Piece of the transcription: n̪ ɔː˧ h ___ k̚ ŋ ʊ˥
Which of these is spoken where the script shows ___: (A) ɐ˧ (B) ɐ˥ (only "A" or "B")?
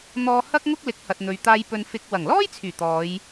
B